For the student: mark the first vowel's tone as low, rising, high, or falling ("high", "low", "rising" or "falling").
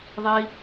high